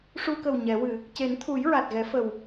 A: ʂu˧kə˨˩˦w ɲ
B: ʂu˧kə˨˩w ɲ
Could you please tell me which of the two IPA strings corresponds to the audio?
B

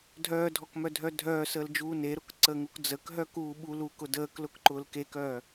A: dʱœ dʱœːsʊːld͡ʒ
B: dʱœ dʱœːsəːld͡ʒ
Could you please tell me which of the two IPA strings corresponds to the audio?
B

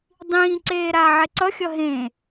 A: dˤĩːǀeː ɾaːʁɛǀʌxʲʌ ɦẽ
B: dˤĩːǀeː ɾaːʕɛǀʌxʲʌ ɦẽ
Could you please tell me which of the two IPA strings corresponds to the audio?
B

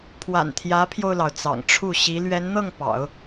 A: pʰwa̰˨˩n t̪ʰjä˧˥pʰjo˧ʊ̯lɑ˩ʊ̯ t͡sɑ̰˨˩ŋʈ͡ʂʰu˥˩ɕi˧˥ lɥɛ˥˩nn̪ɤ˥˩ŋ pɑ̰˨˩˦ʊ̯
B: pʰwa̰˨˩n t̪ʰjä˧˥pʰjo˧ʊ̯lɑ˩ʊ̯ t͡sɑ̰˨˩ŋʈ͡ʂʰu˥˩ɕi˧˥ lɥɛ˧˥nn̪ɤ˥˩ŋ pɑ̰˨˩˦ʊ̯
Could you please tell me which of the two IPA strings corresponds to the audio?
B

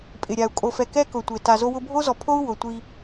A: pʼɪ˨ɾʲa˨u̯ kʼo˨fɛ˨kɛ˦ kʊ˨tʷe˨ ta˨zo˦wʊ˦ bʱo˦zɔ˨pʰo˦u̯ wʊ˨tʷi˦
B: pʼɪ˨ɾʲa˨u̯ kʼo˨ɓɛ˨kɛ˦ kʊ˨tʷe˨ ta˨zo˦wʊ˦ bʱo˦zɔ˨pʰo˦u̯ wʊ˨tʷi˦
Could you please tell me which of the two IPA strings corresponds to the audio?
A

